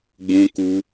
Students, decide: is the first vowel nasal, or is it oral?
nasal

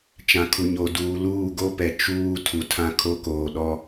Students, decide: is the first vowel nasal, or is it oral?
nasal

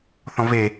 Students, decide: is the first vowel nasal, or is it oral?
nasal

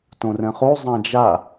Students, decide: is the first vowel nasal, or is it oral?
nasal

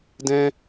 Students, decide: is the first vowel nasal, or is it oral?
nasal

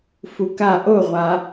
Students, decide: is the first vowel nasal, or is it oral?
oral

